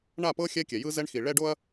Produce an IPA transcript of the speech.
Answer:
ɳ a˦˨ p ɤ˦ xʲ ɛ˦ kʲ ɛ˨ j ɯ˦ z ɛ˦ ɳ x i˨ ɭ ɛ˧ ɖ o˧ ɐ̯

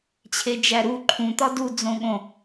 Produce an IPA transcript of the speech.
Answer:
t͡ɕʰ e d͡ʒ æ ɾ u ǃʰ ũ t̪ ɒ d u d͡z õ ɠ õ

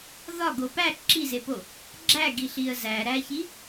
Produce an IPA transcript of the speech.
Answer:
ð ɒ ɡ o p æ ǁ i z e p o | ɡ͡ǁ æ ɡ i ɬ i ə̯ z æ ɾ æ ç i

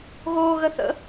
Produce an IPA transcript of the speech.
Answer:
ɣ oː ɣ ə θ ə̰

